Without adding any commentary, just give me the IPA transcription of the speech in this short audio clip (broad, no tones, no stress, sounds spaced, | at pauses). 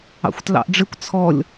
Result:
ɑ̰ xʷ t l ɑ̰ ʔ ɖ͡ʐ ɪ kʷ t͡sʰ ɔ lʲ